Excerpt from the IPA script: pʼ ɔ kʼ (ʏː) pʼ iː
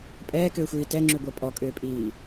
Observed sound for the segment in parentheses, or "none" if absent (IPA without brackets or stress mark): ʏː